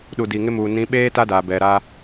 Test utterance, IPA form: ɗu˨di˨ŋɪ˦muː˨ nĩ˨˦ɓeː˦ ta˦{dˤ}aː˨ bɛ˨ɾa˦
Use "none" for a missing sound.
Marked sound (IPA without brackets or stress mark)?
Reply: d